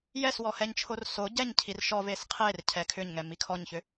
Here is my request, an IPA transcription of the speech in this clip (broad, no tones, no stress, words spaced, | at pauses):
jɛswɔhɛɲt͡ʃʰor so ɟɛɲ cʰirʃɔ vesqʰer cʰɛkʰʏɲŋɛ mikʰɔɲçʏ